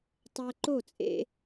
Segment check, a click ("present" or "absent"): present